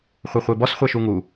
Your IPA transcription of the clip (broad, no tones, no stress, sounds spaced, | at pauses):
χʷ ɛ χʷ e b ɔ s χʷ ɛ ʃ u ŋ u